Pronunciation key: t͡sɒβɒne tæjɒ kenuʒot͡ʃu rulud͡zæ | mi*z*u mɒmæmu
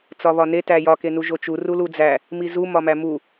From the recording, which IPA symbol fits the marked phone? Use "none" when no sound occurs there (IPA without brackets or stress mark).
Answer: z